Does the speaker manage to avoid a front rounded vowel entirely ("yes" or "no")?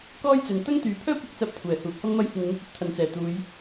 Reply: no